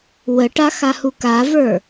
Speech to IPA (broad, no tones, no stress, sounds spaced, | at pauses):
w ə ʈ a x a h u k a v ə˞